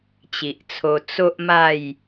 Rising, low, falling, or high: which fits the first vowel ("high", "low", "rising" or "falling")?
low